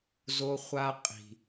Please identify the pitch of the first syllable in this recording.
high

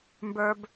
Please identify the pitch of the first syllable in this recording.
low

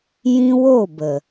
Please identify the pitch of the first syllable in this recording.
high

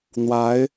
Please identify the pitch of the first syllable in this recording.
rising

